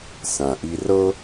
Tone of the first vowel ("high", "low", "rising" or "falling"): low